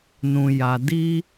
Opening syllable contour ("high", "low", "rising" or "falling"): low